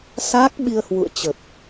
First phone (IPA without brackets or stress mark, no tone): s